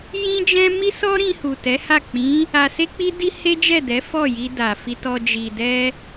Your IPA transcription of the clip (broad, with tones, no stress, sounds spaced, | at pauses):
j ĩ˦ d͡ʒ ɛ̃˦ m i˦ s ɔ˦ ɾ ĩ˧ h u˨ t ɛ˨˦ h a˦˨ k͡p ĩ˨˦ | a˧ s e˦ k͡p i˦ d i˦ h e˦ d͡ʒ ɛ˦˨ d ɛ˨˦ f ɔ˦˨ j i˧ d a˨ f i˧ t ɔ˧ d͡ʒ i˨ d ɛ˧